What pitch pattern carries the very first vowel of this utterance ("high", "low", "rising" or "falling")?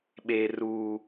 low